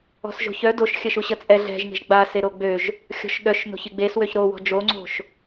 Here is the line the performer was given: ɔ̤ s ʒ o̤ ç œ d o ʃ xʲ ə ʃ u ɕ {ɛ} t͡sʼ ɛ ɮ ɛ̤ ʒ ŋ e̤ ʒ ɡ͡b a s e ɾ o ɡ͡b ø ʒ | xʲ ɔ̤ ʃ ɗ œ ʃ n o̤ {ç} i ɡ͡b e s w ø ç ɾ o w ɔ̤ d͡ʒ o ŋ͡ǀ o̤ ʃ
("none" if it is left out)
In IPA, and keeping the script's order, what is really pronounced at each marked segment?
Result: ə, ç

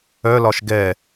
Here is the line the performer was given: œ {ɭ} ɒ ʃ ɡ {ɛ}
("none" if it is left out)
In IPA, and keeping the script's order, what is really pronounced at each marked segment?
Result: l, ɛ

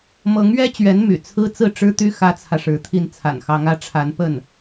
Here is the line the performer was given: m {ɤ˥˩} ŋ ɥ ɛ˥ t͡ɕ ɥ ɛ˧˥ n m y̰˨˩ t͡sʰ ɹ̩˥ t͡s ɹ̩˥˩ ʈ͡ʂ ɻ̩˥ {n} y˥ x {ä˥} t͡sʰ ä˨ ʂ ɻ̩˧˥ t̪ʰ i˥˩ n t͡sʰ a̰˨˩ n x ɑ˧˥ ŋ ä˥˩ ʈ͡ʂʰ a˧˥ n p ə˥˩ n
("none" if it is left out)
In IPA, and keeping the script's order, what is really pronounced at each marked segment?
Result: ɤ˧˥, t̪, ä˥

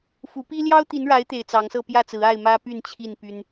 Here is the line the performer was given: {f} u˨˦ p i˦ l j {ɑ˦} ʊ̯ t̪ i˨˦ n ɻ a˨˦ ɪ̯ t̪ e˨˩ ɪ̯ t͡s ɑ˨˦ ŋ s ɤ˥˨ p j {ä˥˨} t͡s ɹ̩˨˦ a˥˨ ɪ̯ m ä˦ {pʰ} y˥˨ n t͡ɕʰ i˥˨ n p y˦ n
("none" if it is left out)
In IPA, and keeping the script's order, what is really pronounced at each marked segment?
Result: f, ɑ˦, ä˥˨, p

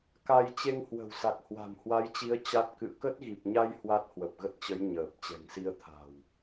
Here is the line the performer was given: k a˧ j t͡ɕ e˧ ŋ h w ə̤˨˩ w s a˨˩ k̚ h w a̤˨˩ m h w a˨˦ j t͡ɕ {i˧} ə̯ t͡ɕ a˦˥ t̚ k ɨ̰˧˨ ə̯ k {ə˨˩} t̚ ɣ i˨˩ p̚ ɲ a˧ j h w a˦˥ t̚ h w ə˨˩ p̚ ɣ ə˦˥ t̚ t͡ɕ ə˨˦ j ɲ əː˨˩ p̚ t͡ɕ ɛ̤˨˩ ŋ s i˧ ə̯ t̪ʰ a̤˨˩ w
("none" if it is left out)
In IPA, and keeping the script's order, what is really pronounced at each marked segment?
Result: i˨˦, ə˦˥

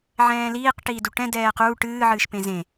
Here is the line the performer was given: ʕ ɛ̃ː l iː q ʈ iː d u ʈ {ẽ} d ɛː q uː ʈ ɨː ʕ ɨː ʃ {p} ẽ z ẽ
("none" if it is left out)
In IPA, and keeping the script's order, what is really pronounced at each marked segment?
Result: ɛ̃, p

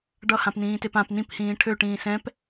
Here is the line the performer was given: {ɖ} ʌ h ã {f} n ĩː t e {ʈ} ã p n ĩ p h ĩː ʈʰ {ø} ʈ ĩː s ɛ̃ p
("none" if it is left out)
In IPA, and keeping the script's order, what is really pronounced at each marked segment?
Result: ɖ, p, p, ø

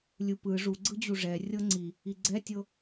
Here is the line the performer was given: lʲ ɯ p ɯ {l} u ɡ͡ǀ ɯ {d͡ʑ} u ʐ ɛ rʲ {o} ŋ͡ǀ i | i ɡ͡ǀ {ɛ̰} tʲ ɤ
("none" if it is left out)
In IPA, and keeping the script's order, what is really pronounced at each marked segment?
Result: ʐ, d͡ʑ, ɤ, ɛ

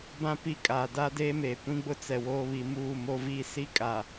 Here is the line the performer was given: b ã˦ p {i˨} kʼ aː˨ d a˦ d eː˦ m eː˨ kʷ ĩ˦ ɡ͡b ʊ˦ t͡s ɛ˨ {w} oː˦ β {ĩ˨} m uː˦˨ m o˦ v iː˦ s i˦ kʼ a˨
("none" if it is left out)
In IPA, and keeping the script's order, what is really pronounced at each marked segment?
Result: i˦, w, i˨

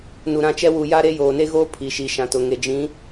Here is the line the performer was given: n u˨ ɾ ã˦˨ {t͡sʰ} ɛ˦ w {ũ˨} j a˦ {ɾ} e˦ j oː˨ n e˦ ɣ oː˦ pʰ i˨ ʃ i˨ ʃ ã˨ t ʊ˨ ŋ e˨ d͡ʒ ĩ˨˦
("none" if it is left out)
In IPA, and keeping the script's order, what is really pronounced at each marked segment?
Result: t͡ʃ, u˨, ɾ

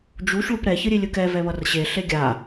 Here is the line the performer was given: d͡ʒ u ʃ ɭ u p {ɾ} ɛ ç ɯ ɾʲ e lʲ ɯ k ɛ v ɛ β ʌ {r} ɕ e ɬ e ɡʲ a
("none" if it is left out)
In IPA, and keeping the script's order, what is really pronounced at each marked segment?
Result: ɾ, r

